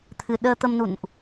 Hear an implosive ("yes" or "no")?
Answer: yes